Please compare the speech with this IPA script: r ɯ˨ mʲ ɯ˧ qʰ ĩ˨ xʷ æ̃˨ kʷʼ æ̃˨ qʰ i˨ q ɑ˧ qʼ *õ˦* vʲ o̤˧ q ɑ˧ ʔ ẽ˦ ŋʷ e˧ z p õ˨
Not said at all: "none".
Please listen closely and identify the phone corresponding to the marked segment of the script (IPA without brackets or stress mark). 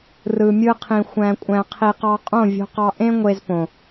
õ˦˨